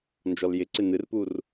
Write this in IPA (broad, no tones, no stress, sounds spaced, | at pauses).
n d͡ʒ ɔ l j ɪ ǀ ɪ n̪ ɨ r p u r